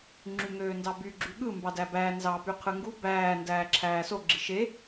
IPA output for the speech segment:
ŋ͡ǁyŋøːndɑby ɡ͡ǁyɠɯ mbɑdæbæː nzɑ pyqʰɯŋɡu bæː ndæːǁʰæːso ɡ͡ǁiʃe

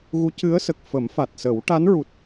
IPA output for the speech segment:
ɣu˧˥cɨ˧˥ə̯sə˨˩k̚ fə˨˩˦mfa˨˩t̚sə˨˩˦w ʈa˧˥nɹu˨˩t̚

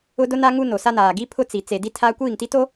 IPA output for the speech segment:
ʊ˦dʊ˦na˦ ŋu˦no˨ sa˦naː˨ ɡi˦ pʰʊ˦t͡si˨ t͡se˨di˦ tʰa˦ kʷiː˦˨ŋti˦to˦

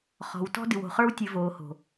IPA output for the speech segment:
χɔ̤˨w tɔ̤˧dɨ˨wo̤˨χə˞˧w tʲɨ˨ voː˨ho̤˨

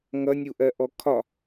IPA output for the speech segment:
ŋʌnʲuʔɜʔɔ kʰɒ

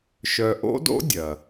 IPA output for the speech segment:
ʃœ˧ ʔo̰˥do̰˥ dʲɐ˩

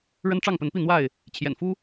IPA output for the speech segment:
ɻə˦nʈ͡ʂɑ˥˨ŋpə˨˦npi˥˨ n̪wa˥˨ɪ̯ | t͡ɕʰjɛ̰˨˩nfu˦

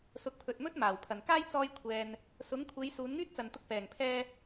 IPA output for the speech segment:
sʊ˨k̚pʰɵ˨t̚ mɵ˥t̚ maː˨˩w pʰɐ˨˩nkaː˥j t͡sɔː˥jkʷʰɛː˧n | sʊ˨˥ŋkʷʰe˨˧j suː˨˧nŋyː˥t̚t͡sɐ˨nt̪ʊ˧k̚ pɛː˨˩ŋpʰɛː˧

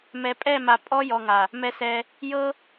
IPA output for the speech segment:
mɛ˨pʼɛ˦˨ma˨ pʼɔ˦jɔ˨ŋa˨ | mɛ˦sɛ˦ | jɤ˦

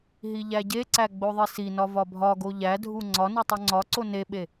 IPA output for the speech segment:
ɦiʎæɟeǀæ ɡ͡boðˤisinɒ vɒbʱɒɡo ʎædʱu ŋ͡ǀɒnu tˤoŋ͡ǀɒǀo neɓe

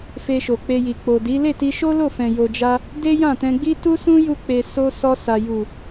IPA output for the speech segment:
fe˧ʃo˨k͡pe˧ji˨ k͡po˨di˨˦ le˦˨ti˧ʃo˦lo˦˨ fɛ̃˨jo˨d͡ʒa˧ | de˦jã˦˨tɛ̃˧ɡ͡bi˦ tu˦sũ˦ju˧ k͡pe˨ so˧ sɔ˧sa˨ju˨

